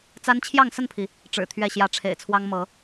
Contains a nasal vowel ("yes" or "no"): no